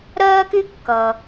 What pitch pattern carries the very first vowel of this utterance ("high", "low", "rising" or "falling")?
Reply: high